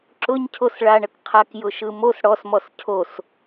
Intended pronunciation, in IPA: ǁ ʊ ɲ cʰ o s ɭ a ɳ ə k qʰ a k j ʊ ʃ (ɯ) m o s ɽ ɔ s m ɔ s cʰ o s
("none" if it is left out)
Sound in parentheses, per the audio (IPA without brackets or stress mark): ɯ